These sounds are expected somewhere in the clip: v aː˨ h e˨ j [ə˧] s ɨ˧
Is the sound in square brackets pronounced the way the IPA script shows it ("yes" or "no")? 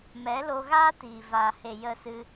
yes